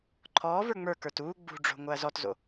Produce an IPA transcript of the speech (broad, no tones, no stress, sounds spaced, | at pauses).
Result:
ǃʰ ɔː v ə˞ ŋ͡m ə˞ k ə˞ t uː ɡ͡b ṳ ɖ͡ʐ o̤ ŋ o ɐ̯ z ɔ t z o̰